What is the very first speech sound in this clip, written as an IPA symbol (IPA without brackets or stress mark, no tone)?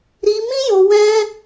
ɾ